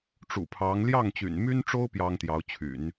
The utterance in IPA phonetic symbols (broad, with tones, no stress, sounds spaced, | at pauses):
ʈ͡ʂ ṵ˨˩ pʰ ɑ˧˥ ŋ l j ɑ˥˩ ŋ t͡ɕ y̰˨˩ n m y˥ n ʈ͡ʂ o˥ ʊ̯ p j ɑ˥ ŋ t̪ j ɑ˧˥ ʊ̯ t͡ɕʰ y̰˨˩˦ n